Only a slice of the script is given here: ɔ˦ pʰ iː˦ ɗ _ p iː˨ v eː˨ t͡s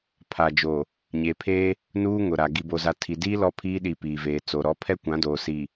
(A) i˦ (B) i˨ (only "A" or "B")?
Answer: B